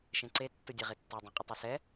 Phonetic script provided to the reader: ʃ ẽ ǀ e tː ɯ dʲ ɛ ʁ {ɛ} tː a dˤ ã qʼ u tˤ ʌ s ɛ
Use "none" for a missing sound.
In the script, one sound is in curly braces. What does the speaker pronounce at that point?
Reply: e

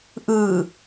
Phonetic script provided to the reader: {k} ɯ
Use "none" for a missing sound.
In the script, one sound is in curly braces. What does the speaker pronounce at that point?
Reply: ʔ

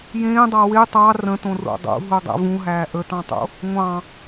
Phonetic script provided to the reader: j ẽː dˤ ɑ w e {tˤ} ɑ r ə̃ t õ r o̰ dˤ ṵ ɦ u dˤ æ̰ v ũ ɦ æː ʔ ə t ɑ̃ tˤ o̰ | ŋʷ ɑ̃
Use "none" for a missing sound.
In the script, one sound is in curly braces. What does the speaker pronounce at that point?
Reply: tˤ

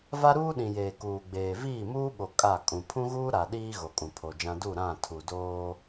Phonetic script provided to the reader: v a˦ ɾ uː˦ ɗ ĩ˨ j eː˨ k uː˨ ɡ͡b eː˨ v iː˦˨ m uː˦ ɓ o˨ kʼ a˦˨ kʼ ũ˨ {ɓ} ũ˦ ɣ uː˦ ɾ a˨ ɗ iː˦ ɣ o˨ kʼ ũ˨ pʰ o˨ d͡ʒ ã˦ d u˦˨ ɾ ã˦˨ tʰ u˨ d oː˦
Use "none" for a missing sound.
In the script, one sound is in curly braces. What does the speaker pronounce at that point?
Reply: pʰ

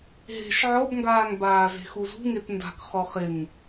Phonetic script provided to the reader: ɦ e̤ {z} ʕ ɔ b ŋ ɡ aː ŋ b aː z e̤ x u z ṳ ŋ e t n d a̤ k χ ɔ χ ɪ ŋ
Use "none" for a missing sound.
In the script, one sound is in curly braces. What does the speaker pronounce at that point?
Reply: ʃ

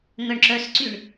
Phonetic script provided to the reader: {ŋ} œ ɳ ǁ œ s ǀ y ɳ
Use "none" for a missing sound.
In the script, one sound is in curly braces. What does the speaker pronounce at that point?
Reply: ŋ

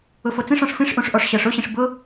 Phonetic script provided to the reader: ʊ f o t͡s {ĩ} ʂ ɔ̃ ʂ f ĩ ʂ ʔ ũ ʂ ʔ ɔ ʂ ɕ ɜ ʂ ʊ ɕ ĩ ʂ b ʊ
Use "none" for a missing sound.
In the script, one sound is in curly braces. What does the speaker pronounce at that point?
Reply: ĩ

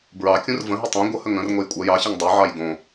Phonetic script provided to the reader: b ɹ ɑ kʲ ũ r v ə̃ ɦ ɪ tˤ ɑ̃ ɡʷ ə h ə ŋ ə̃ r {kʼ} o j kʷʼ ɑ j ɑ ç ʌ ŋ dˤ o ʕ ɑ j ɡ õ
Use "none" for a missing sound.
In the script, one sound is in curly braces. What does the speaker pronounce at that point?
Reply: ŋ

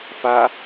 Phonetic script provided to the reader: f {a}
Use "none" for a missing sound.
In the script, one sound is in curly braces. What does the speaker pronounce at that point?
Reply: a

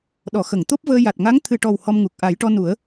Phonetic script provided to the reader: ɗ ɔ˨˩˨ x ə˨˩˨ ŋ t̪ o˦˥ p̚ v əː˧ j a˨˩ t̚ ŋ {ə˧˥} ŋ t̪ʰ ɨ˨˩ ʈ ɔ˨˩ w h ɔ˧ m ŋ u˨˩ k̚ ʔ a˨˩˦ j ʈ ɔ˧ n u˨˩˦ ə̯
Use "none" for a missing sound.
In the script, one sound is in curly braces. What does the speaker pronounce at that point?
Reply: a˧˥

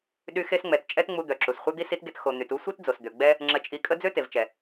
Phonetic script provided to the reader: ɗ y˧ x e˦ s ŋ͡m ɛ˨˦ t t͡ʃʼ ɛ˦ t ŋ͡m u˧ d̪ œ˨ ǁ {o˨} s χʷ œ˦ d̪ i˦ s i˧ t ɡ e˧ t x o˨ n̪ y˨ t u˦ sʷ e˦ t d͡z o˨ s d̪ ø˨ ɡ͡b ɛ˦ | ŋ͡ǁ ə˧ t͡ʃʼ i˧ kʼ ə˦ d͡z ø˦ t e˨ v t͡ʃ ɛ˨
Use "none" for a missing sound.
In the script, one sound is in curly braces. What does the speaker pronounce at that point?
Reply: u˨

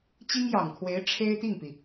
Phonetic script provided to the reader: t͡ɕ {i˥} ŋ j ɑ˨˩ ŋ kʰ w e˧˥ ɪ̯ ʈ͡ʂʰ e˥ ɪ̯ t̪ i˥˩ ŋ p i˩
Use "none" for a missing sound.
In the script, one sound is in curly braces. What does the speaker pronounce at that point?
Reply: i˥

